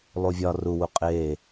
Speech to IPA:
lˠ u vʲ ɒ r u w u qʼ eː

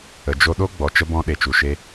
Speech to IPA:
ə˨ d͡ʒ o˧ ɗ o˦ ɡ͡b ɔ˨ t͡ʃ ə˧ b ɔ̃˧ ɗ e˨ t͡ʃ u˨ ʃ e˧

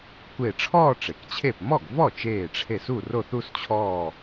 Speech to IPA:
kʷ e˧˩ ʈ͡ʂʰ ɔː˥˧ ʈ͡ʂ e˩ k t͡ɕʰ e˥˩ p m ɔ˥˩ ɡ v ɔ˥˩ t͡ʃ eː˧˩ ʈ͡ʂʰ e˧˩ s u˥˩ r o˥˩ θ u˥˧ s t͡ɕʰ ɔː˧˩

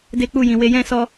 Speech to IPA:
d e˦ k͡p u˦˨ j ĩ˨ w e˧ j ɛ̃˦ s ɔ˧

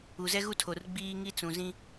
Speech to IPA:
u˨ z ɛ˦ ɣ u˦ tʰ o˨ r ɡ͡b iː˦ ŋ i˦ t͡s ũ˨ z ĩ˦

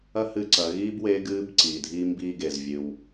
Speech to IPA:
ɐ˥ h ɨː˧ ǀ ɐ˩˧ ɣ iː˥ b w e˧˥ ɡ ɨː˧˥ b ǀ iː˩ dʱ iː˥ m b iː˥ ɡ e˩ z vʲ ɨ˩ w

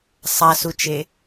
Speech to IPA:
sˤ a s u t͡ʃ e

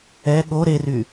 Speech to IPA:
ɛ ɠ o ɾ e r y

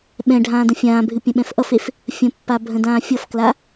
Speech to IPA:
ɓ ɛ̃ ɖʱ ãː d ə̃ fʲ ãː bʱ ɨ pʲ ə̃ ɓ ɛ̃ f ʔ ʌ f e f | fʲ ə̃ pː a bʱ ə̃ d ãː fʲ ʌ f k l a

